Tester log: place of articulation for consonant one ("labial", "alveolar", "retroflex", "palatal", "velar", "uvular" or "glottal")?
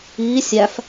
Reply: alveolar